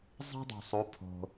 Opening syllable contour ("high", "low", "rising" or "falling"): high